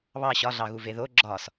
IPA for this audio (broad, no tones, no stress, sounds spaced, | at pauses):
β ɑ ɕ ɒ ɮ ɑ ɣ u v e ð o ɡ͡ǁ ɒ s